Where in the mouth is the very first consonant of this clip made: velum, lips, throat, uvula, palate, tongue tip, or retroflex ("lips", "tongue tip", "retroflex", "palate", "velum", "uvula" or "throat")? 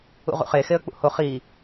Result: uvula